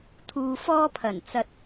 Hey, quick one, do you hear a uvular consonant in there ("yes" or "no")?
no